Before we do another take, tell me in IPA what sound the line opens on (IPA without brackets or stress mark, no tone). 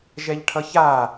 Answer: ʒ